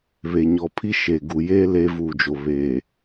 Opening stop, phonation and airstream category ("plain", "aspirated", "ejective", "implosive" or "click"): aspirated